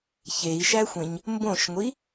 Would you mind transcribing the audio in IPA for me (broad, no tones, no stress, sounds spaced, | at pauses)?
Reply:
ç e i̯ ʃ æ xʷ ẽ ɲ | m b õ ʃ ŋʷ i